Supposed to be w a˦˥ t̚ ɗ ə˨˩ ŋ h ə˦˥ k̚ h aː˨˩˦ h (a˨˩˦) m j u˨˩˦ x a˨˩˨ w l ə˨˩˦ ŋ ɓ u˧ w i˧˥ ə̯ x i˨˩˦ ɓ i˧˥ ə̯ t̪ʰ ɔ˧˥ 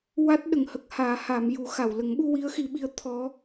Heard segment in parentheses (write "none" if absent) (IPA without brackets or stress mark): a˨˩˦